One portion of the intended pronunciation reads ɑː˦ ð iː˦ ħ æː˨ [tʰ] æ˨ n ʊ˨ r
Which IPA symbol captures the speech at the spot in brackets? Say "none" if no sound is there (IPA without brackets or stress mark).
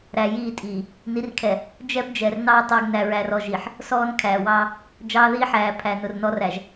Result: pʰ